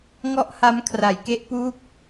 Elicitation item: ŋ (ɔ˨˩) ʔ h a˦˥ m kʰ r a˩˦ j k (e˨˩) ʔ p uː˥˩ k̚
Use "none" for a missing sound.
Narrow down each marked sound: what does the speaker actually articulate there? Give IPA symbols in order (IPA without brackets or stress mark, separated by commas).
ɔ˥˩, e˥˩